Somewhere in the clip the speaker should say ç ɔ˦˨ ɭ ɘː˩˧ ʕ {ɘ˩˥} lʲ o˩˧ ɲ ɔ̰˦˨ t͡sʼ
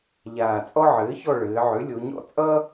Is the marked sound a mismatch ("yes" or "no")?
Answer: yes